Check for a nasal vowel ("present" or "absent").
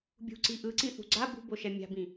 present